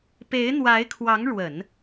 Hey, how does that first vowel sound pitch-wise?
rising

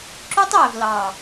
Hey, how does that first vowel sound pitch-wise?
high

